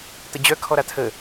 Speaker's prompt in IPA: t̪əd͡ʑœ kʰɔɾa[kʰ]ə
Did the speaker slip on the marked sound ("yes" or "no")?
yes